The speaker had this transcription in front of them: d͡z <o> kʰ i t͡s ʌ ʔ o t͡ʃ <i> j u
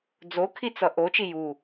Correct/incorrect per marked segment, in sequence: correct, correct

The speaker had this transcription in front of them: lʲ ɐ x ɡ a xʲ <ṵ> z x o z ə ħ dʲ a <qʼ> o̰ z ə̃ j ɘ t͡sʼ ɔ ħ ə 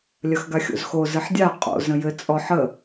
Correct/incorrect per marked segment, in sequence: incorrect: o̰, correct

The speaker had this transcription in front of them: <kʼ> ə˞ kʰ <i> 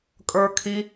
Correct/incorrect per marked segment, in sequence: correct, correct

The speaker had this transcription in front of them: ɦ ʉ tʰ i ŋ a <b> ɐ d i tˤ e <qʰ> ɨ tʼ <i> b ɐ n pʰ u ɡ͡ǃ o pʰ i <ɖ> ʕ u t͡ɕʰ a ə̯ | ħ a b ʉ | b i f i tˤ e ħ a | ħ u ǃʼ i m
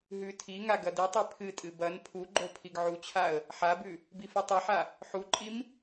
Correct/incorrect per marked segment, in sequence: incorrect: ɡ, incorrect: pʰ, incorrect: ɨ, incorrect: ɡ

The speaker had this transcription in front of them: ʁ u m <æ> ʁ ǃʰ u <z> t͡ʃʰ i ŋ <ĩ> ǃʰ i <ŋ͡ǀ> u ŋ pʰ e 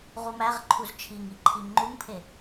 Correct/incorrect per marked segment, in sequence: correct, correct, incorrect: i, incorrect: ŋ͡ǃ

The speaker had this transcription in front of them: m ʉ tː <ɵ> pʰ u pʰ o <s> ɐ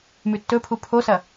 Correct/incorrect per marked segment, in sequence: correct, correct

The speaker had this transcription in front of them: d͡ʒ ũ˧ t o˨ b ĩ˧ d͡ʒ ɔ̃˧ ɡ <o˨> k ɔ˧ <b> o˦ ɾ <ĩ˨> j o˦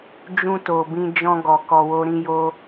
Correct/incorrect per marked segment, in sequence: incorrect: ɔ˨, incorrect: w, incorrect: ĩ˦

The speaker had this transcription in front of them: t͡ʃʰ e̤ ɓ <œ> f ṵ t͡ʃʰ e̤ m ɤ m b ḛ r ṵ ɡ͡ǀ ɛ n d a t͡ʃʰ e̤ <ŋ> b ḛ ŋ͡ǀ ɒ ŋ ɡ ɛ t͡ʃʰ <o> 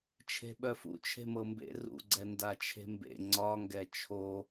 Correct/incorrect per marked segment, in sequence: correct, incorrect: m, correct

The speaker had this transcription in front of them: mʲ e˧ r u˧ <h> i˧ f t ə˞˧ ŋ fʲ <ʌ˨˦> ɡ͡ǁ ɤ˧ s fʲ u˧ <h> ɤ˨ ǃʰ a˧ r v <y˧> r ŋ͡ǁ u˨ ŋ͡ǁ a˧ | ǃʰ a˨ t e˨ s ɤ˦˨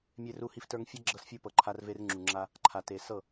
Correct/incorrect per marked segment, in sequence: correct, incorrect: ʌ˦, incorrect: p, incorrect: e˧

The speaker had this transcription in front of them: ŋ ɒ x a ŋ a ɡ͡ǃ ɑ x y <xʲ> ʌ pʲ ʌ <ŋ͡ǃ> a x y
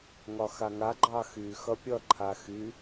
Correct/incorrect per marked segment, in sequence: incorrect: x, incorrect: ǃʰ

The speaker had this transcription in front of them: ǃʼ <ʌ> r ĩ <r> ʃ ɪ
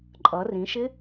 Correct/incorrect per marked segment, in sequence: correct, incorrect: none

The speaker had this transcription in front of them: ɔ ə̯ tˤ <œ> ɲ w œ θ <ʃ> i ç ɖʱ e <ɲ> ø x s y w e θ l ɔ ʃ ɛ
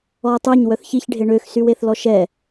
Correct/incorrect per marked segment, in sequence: incorrect: ø, incorrect: ç, incorrect: ɳ

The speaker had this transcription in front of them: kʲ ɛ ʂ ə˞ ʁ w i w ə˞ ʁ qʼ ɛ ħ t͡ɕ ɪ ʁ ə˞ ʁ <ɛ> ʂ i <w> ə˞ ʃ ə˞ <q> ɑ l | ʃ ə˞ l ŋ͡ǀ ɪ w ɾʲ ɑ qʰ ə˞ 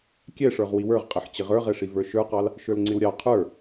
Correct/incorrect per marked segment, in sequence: correct, incorrect: v, correct

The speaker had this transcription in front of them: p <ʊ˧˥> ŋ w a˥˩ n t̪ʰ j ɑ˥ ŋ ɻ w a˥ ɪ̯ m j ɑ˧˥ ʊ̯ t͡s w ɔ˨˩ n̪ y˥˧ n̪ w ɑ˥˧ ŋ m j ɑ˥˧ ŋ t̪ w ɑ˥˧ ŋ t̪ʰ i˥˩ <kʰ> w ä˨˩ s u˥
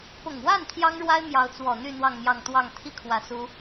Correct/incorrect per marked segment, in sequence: incorrect: ʊ˨˩, correct

